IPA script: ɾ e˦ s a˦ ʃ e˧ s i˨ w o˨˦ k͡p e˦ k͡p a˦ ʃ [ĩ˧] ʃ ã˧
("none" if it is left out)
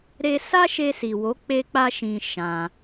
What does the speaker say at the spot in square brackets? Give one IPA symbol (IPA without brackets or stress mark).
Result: ĩ˧